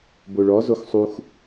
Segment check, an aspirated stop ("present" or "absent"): absent